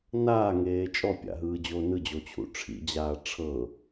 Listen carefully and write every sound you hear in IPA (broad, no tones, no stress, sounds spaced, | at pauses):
n aː ŋ eː t͡ʃʼ ɔ pʲ a̰ ɦ ɯː d͡ʑ oː n ɯ d͡ʑ o t͡ɕʰ ṵ ʈ͡ʂʰ ḭ d͡ʑ aː ʈ͡ʂʰ ɤ